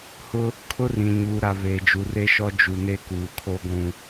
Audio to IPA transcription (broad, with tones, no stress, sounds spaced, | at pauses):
h ʊ˦ | kʰ ʊ˦ r ĩ˨ ɲ uː˨ ɾ a˨ β eː˨ d͡ʒ u˨ r e˦ ʃ ɔ˦ d͡ʒ u˨ n e˦ k uː˨ kʰ o˦ ɡʷ ũ˦